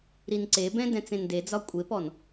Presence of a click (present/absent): present